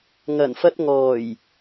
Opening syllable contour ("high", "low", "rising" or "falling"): low